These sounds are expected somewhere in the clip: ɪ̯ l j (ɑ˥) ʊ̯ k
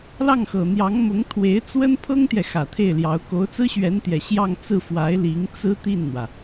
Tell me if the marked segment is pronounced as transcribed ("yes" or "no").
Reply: no